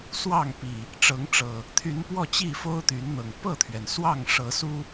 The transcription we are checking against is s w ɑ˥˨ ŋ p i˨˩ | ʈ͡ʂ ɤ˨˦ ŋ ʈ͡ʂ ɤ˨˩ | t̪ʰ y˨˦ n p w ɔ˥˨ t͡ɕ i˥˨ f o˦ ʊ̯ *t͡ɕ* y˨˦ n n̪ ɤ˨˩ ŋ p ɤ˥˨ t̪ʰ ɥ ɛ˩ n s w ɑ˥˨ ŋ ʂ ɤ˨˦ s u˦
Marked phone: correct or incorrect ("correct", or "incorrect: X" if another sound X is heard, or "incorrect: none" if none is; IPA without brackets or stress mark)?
incorrect: t̪